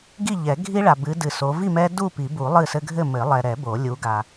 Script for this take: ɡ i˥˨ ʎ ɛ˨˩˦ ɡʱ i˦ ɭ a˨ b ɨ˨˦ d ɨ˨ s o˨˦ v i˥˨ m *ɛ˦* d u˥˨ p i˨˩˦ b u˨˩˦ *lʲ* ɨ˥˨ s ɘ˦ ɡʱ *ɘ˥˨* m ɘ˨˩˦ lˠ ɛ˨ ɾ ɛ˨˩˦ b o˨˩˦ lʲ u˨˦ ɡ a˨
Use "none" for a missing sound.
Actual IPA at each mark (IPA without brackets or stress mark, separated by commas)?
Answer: ɛ˦, lˠ, ɘ˥˨